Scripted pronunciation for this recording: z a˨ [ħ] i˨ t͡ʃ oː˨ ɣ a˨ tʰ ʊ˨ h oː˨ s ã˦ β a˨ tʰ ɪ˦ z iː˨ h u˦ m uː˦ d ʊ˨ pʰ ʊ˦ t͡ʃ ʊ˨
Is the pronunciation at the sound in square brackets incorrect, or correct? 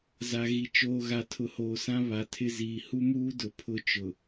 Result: incorrect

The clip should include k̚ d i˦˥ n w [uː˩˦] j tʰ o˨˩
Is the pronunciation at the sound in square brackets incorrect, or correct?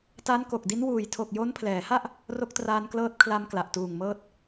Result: incorrect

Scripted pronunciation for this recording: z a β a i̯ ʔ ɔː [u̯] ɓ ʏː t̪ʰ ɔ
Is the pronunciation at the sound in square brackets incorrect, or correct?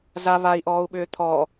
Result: correct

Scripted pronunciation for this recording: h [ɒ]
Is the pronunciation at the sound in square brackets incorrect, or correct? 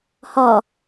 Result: correct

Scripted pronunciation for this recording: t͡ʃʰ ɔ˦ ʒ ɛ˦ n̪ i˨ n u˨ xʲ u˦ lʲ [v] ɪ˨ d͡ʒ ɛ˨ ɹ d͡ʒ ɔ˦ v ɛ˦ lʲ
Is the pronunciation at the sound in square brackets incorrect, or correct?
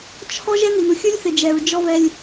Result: incorrect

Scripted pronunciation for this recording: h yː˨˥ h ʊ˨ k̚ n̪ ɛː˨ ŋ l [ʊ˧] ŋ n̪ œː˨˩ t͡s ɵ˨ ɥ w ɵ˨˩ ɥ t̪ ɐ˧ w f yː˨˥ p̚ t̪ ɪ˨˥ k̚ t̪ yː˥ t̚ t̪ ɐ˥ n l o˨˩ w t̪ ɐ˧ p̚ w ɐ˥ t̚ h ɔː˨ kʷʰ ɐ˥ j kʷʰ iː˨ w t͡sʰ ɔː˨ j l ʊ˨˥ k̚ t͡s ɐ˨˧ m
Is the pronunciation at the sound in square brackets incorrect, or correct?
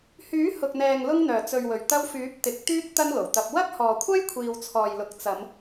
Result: correct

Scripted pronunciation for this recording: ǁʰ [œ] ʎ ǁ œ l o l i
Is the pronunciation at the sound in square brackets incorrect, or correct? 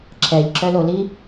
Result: incorrect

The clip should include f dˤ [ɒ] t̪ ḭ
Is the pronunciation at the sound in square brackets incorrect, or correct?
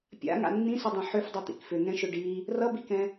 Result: incorrect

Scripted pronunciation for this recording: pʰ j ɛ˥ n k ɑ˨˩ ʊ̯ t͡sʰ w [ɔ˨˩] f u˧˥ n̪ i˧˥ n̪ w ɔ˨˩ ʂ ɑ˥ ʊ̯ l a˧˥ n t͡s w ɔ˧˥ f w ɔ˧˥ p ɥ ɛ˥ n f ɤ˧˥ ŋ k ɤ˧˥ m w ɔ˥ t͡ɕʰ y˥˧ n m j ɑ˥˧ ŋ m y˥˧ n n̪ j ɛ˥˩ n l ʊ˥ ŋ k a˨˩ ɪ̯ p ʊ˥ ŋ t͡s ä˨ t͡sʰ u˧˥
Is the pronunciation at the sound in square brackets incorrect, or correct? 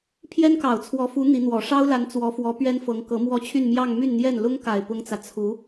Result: incorrect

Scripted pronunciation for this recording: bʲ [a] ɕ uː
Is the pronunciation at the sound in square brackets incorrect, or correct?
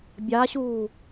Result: correct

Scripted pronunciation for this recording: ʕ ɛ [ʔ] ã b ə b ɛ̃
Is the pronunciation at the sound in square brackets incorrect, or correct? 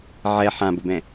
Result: incorrect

